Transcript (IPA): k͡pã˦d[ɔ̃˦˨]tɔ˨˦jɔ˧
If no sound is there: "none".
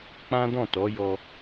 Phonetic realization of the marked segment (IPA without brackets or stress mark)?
ɔ̃˦˨